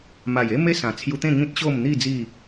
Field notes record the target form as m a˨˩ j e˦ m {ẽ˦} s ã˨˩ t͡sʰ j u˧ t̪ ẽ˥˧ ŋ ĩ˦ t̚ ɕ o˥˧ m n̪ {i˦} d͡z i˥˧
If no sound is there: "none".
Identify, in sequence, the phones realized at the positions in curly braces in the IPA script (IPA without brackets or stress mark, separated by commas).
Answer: e˦, i˥˧